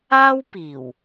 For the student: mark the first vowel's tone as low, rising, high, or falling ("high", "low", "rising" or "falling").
high